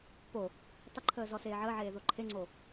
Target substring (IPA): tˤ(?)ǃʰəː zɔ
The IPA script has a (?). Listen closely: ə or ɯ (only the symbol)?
ə